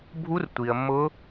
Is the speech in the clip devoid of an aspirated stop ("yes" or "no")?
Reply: yes